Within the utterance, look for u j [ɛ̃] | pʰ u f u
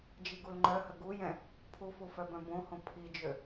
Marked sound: correct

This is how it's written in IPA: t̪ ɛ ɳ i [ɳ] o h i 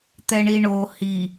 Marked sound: correct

